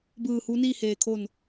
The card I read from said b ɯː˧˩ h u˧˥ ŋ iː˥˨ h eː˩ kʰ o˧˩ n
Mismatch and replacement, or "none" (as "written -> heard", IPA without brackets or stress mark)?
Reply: ŋ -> n